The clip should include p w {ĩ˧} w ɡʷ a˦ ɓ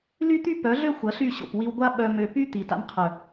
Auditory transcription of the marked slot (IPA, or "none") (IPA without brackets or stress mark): i˧